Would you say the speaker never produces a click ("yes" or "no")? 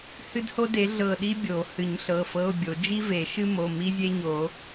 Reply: yes